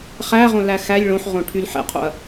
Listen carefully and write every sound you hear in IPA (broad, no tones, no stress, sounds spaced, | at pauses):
χ æ ʁ õ l æ x æ lʲ ɭ õ ħ ʁ õ ʈʰ y l ħ ɛ̰ qʰ o̰ ɐ̯